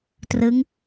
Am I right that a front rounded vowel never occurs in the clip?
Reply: yes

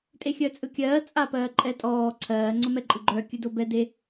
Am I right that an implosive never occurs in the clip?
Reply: yes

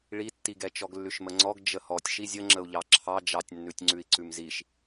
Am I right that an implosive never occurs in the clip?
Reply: yes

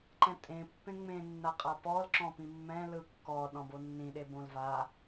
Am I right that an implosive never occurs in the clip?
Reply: no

